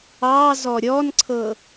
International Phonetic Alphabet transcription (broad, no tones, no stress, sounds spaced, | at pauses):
ɑ z ɔ ɾʲ ɔ n ǀʰ ɤ